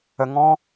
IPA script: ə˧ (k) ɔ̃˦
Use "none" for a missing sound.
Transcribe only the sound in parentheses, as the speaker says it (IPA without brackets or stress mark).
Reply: ŋ